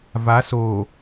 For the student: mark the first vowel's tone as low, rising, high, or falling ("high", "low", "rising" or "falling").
rising